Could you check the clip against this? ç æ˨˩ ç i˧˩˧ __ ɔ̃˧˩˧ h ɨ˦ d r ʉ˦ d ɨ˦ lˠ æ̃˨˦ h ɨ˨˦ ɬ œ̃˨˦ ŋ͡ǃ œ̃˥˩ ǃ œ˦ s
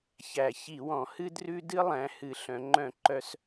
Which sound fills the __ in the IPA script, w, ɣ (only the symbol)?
w